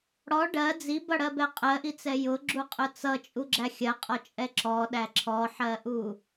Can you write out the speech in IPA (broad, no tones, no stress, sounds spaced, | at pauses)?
ɽ ɔ ɖ ɜ d͡z i b ʌ ɽ ɜ b ɛ qʼ ɜ ʔ i t͡s ɛ j ʊ ɡ͡ǁ u qʼ ʊ t͡s ʌ t͡ʃʼ u ɡ͡ǁ æ xʲ ɜ qʼ ɔ t͡ʃʼ ɛ ǁ ɔ ɗ æ ǁʰ ɔ ħ ɜ ʔ u